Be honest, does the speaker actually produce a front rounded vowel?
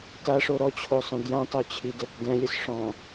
yes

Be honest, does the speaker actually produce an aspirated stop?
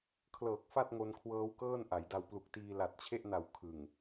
yes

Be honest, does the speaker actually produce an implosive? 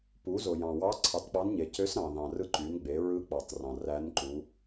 no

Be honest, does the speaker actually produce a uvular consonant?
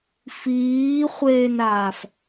yes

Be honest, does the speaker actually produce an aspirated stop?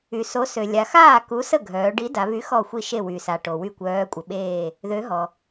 no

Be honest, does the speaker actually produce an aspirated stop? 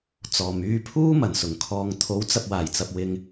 yes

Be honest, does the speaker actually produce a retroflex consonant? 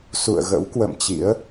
no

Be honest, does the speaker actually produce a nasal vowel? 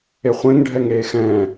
yes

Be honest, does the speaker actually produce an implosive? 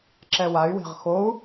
no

